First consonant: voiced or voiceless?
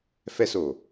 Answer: voiceless